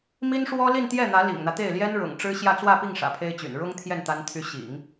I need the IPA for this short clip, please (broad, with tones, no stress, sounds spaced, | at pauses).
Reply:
m i˥ n ʂ w ɔ˥ l i˥˧ n t̪ j ɛ˥˩ n̪ ä˧˥ l ḭ˨˩ ŋ n̪ ä˦ t̪ e˥˩ ɪ̯ l j ɛ˥ n ɻ ʊ̰˨˩ ŋ ʈ͡ʂ ɻ̩˥ ɕ j ä˥˧ t͡s w ä˥˧ p i˥˩ ŋ ʂ ä̰˨˩ pʰ e˥ ɪ̯ t͡ɕ y̰˨˩ n ɻ ʊ˥ ŋ t̪ʰ j ɛ˥˩ n t̪ a˧˥ n t̪ʰ y˧˥ ɕ ḭ˨˩˦ ŋ